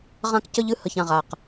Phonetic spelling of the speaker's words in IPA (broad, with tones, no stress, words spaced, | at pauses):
ʁã˦kcə˦ʎ ɨ˨hə˨ç ã˨ʁa˨q